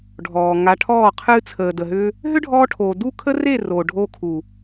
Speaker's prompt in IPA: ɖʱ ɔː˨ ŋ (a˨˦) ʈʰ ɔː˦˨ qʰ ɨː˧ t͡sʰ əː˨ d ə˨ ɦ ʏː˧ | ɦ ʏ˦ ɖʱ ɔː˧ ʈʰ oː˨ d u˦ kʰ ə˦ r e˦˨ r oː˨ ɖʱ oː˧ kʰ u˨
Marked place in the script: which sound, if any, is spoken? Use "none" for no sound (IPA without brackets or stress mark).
a˨˦